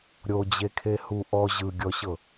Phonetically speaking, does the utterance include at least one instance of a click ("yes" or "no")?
no